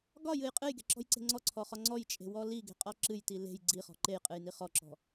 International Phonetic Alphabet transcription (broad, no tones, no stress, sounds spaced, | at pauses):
ɡ ɒ j ɨ j qʼ ɨ j ɡ e̤ ǁ ɔ̤ j ǀ e̤ ŋ͡ǀ ɔ ǀʰ ɔ χ ɒ ŋ͡ǀ ɔ j t͡ʃʼ e̤ w ɔ l i ɡ e̤ qʼ ɔ ǁ ɨ j t i l e̤ j ɡ͡ǀ i χ ɔ̤ ǃ e j qʼ ɨ j n i χ ɔ ǁ ɔ̤